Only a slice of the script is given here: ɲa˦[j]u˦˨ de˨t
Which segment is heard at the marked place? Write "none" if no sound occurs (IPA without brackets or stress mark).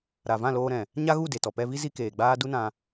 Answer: ɣ